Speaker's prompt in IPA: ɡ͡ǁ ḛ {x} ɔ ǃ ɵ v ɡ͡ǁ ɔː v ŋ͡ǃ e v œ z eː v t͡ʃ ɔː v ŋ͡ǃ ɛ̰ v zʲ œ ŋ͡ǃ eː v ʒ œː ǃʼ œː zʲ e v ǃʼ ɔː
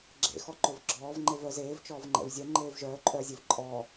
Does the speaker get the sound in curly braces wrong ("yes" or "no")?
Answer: no